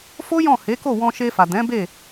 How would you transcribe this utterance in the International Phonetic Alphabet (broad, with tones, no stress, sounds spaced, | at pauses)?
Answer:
f o˦ j ɔ̃˦˨ h e˨˦ k o˦˨ w ɔ̃˧ ʃ e˧ f a˨ d ɛ̃˨˦ b e˦˨